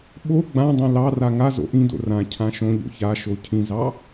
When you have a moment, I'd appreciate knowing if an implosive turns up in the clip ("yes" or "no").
yes